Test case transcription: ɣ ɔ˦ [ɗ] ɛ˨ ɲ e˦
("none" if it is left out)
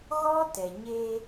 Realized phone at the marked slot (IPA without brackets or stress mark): t